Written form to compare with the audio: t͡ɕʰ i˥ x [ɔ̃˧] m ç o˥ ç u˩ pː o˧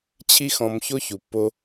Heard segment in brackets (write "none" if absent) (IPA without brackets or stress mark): ɔ̃˧